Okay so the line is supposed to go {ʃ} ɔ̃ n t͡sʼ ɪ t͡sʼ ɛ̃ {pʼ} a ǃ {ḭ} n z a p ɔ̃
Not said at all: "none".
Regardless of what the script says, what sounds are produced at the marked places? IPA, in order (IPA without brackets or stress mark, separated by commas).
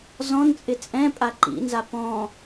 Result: z, pʼ, ḭ